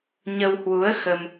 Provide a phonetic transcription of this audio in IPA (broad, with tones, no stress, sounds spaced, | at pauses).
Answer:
ɲ ə˧ w h w u˨˦ ə̯ x ə˧ m